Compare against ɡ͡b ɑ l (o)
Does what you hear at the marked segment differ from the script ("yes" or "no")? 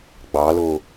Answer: no